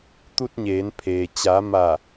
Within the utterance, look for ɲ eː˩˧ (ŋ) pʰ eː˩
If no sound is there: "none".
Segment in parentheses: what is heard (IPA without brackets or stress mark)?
n